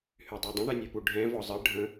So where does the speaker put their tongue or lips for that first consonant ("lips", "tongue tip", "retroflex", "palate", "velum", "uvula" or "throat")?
throat